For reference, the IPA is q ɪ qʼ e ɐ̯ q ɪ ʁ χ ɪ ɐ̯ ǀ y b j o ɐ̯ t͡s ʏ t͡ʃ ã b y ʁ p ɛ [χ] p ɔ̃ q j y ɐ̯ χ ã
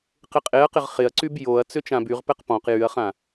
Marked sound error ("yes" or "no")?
yes